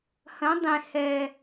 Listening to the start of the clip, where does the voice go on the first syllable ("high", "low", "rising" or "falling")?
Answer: rising